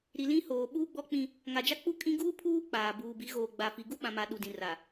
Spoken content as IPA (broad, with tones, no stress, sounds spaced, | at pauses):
ɾ i˨ l ĩ˦ h oː˨ ɓ uː˦ ɡ͡b ɔ˦ k͡p ĩ˦ | ŋ a˨ d͡ʒ a˦ k͡p u˦ kʼ ĩ˦ ɡ uː˦ pʰ uː˦ k͡p aː˨ b uː˨ b i˨˦ ɣ oː˨ ɡ͡b a˨ f i˨ ɡ u˦ ɓ ã˨ m a˨ ɗ u˨ d ĩ˨ r a˨